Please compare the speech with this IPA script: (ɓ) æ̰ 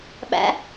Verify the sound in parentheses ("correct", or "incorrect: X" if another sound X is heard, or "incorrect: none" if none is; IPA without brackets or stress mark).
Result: correct